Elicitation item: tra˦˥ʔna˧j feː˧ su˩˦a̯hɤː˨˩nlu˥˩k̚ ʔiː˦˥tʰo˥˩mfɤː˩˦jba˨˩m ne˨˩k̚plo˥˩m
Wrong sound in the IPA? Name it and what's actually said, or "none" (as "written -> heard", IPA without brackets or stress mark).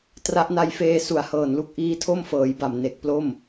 none